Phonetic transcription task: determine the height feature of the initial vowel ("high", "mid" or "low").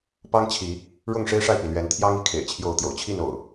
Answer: low